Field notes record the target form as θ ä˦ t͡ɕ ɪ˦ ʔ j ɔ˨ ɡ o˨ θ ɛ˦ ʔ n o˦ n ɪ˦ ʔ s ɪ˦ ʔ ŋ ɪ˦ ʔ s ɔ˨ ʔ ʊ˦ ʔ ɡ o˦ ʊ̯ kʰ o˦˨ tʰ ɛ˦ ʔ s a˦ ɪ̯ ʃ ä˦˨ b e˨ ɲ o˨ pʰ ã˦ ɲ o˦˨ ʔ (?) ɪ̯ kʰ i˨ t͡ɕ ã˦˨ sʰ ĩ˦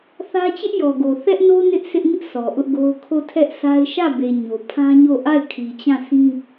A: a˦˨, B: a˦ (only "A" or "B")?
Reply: A